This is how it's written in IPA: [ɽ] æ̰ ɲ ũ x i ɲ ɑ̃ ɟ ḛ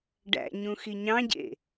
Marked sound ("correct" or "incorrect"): incorrect